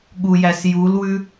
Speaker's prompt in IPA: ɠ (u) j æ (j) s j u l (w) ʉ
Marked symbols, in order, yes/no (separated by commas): yes, no, yes